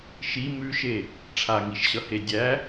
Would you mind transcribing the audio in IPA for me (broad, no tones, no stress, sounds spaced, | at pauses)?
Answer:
ʃ i m ʉ ʃ e | ʈ͡ʂʰ a ŋ i ʃ ɕ ʌ h e dʲ æ